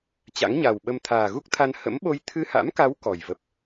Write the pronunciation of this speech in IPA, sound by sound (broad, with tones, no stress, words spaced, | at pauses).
t͡ɕa̰˧˥ŋɲa˨˩wɓə˧m t̪ʰaː˨˩ɣu˦˥k̚t̪ʰa˧n hə̰˧˥mɓo˧j t̪ʰɨ˧ha̰˧˥mka˨˦w kɔ˨˩j və˨˩p̚